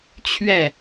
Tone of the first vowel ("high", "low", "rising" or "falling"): falling